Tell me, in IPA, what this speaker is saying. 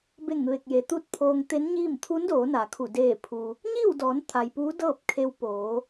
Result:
be˧˩ŋʋe˧˩k̚je˩ t̪u˥˨t̚pʰoː˧ŋt̪e˧˥nɲiː˥˨m t̪ʰu˧˥ndoː˩˧na˩kʰu˧˩ deː˧˩pʰu˩ | ɲiː˥˨wdɔː˩˧nt̪ʰa˩j puː˧˥dɤː˥˨p̚kʰe˧w poː˩˧

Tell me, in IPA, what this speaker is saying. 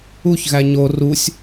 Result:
uçɣæ ɲo rusʲ

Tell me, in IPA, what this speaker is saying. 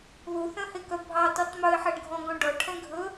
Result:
ðuθœ̃hekœ bʱɑtytˤ mɵɪ̯ħæɳɡʱɔ̃ɡɔ̃ ɖɔʈʰɛ̃ ɡʱɵ

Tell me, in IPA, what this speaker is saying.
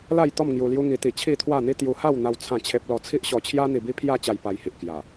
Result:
la˥˧jt̪ɔ˥˧m ŋju˧lju˦ŋi˧t̪i˧ t͡ɕʰi˥˧t̪ʰwa˥˧n̪i˦ t̪ju˧ha˥˧wn̪a˧w t͡sʰã˥˧t͡ɕʰe˦p̚lɔ˥˧ t͡sʰi˦ʔɕɔ˧t͡ɕʰja˦ n̪i˧bi˦ pʰja˥˧t͡ɕa˧j pa˧jhi˨ʔ kja˨˩

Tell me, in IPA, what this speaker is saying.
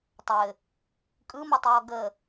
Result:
tˤɘ | kʼɯmɔtˤjɔ ɡə

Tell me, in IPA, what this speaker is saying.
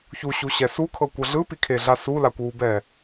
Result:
çuɕuɕɛ sukʰɤkʷɤ ɮɯpikʰeɮa sulakʷwubɛ

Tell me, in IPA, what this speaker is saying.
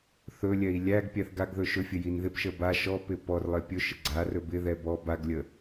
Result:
θɵlʲɛi̯ lʲæɡ pʲæθɡaɡðɵ ʃɵfʲɘ jinðɪpʃə ba ʃɔpɪ pɔrlˠɪ pʲɵʃə ɡ͡ǀarɵ bɪðɛ bɔ baɡlʲə

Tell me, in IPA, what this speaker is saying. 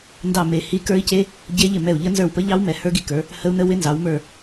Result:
ndɑ˦˨ me˦˨hi˦˥ kə˞˦˥i̯ce˦˥ | ɟe˦˥ʎɪ˦˨mɛ˦˨u̯ʎə˦˥ nzə˞˦˨wpə˦˥ʎɑ˦˥w mɛ˨˦hə˞˦˥ɡi˦˨kə˞˨˦ | hə˦˥u̯nə˦˥ wɪ˦˥nzɑ˨˦wmə˞˦˨

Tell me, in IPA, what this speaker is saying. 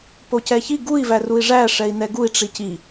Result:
pocɛçi ɡui̯ værui̯ʐæ ʂɛi̯nɛɡui̯ ʈ͡ʂici

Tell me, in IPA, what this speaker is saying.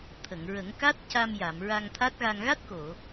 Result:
t̪ʰə˨˩˨ŋɹə˨˩˦ŋ ka˦˥t̚ca˧m ja˨˩˨mɹa˧ŋt̪ʰa˦˥t̚ɣa˧ŋ ɣa˦˥t̚ko˨˩˨

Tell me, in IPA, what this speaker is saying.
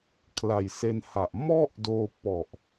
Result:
kʰla˨˩jse˧nha˨˩ʔ mɔ˥˩ʔdoː˧ pɔ˨˩ʔ

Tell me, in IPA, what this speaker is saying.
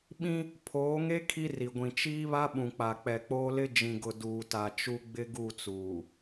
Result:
ɓĩ˦ | pʰoː˨˦ŋe˦ kʰi˦ri˨ɡʷĩ˨ t͡ʃiː˦βa˦ ɓũ˨k͡pa˨k͡pɛ˨k͡poː˦ lɪ˦d͡ʒĩ˨ɡʊ˨ duː˨ta˨t͡ʃu˦ ɡ͡bɪ˦ɡu˦˨t͡suː˨

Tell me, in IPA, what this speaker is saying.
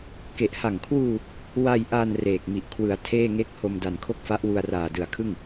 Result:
ke˨˩ʔha˨˩ŋkʰwuː˧ | wa˧jʔa˧n reː˨˩k̚mi˨˩ʔ kʰwɯ˩˦a̯ tʰeː˥˩ŋe˥˩k̚ ho˧mda˨˩nkʰo˥˩k̚fa˦˥ʔ wu˧a̯raː˨˩dɯ˨˩a̯kʰɯ˥˩ŋ

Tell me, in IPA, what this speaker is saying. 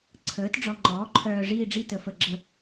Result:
ǀʰəː˩˥t ɖ͡ʐɔ˨ŋ͡ǃɔː˩˥ǃʰœː˨ ʐiː˦˨ɖ͡ʐi˦˨ tə˨fə˦˨ɡ͡ǁə˦˨

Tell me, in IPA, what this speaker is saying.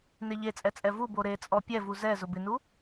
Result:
neʎet͡sʼɛ t͡sʼɛvubo ɾet͡sʼɔ pʲɛvu zɛ zʊbɪnu

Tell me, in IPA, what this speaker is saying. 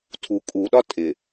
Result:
tʰu kʼuɗɒ tʼɪ

